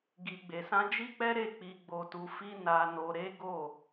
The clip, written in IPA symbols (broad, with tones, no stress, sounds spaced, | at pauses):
ɡ i˧ ɡ͡b e˧ s ã˦ d͡ʒ i˦ k͡p ɛ˦ ɾ e˦˨ k͡p i˧ ɡ͡b o˧ t u˧ f i˦ n a˧ n o˧ ɾ e˦ ɡ o˦˨